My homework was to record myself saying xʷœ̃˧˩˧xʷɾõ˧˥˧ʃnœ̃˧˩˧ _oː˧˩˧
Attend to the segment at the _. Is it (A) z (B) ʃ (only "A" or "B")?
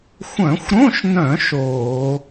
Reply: B